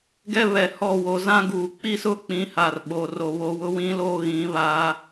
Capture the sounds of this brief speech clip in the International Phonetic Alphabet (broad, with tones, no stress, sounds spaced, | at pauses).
ɡ ɛ˦ β ɛ˨ h ɔ˦˨ w o˨ z ã˦ ɡ uː˨ k͡p i˦ s ʊ˦ k͡p ĩ˨˦ h a˨ r ɓ o˨ r o˨ β o˨ w ʊ˦ w ĩ˦ l oː˦ ɣ ĩ˨˦ β a˦